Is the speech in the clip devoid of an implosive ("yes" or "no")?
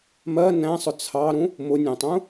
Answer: yes